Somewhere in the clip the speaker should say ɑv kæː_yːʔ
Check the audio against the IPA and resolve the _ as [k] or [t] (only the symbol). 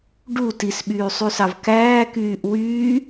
k